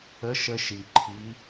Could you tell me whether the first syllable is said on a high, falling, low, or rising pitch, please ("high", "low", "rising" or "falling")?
rising